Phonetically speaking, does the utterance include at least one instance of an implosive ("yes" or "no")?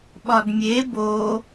yes